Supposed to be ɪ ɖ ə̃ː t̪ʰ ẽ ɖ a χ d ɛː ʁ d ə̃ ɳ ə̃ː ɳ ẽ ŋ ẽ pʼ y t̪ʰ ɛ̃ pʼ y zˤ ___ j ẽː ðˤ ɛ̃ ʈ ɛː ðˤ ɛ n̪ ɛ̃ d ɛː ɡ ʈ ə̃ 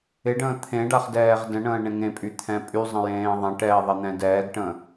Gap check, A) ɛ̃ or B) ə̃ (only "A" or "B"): B